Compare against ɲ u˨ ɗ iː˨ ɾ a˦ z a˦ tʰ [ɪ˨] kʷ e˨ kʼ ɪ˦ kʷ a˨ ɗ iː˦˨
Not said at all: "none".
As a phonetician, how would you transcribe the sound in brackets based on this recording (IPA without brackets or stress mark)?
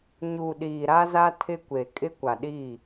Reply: ɪ˦